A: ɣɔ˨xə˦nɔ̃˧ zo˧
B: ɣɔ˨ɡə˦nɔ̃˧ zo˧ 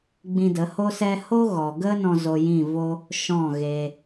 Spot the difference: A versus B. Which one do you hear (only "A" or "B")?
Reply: B